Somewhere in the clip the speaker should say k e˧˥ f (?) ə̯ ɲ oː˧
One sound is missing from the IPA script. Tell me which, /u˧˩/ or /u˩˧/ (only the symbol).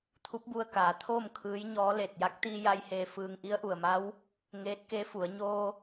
u˩˧